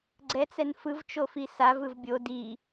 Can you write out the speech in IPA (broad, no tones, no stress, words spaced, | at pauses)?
ɡ͡ǀɛt͡sɛn fɯvt͡ʃofi savɯv bʲo di